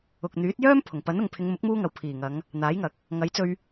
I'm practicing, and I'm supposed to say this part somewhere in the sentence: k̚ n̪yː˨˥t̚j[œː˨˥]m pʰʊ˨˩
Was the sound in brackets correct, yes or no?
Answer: no